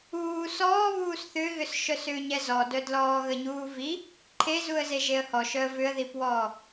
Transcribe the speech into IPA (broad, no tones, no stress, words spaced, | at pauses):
uː sɔːβuːs θʏɣʏsʃœs ʏːɲɛzɔdœ dlɔːɣəɲuːvi | ǃʰe zuə̯zeʒeə̯hɔ ʃœə̯vʏə̯ðipwɔː